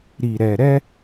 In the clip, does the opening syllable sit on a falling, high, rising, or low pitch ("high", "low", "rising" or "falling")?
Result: low